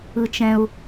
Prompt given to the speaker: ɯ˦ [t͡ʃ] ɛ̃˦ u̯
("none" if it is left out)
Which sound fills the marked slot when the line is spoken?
t͡ʃ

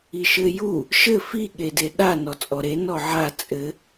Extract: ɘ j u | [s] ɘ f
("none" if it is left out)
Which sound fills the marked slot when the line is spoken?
ʃ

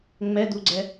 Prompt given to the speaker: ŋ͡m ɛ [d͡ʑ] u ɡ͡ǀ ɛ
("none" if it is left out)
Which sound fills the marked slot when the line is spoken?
d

